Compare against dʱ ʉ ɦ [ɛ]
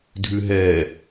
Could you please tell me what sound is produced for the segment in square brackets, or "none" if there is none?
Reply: ɛ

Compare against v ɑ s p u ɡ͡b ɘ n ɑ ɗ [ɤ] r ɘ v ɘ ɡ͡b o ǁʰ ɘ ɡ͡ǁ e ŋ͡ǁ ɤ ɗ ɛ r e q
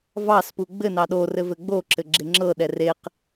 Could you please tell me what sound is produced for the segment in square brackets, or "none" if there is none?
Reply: o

